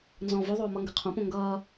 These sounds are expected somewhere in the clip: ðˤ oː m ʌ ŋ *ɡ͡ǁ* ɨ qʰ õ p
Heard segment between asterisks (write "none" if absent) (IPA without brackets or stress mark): ɡ